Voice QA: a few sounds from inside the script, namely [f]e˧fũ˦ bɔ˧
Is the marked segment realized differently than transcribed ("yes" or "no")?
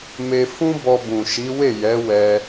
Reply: yes